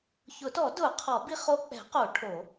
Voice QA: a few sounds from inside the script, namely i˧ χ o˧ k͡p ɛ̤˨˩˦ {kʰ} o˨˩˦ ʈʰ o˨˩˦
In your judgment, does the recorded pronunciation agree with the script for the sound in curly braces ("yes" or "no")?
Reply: no